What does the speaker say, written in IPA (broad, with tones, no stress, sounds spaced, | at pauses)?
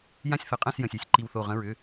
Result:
j ã˥˨ sʲ θ ɘ˨˦ qʼ ɛ̃˥˨ s j ə̃˩˧˩ sʲ e˧˩ sʲ ǃ i˧˩ w θ o˧˩ ʁ ə̃˨˦ ɹ ʏ˩˧˩